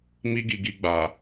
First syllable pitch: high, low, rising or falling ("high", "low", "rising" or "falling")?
high